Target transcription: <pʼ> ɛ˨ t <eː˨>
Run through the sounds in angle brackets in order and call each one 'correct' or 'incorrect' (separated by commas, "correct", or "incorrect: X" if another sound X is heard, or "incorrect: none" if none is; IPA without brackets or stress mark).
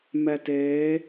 incorrect: m, incorrect: eː˨˦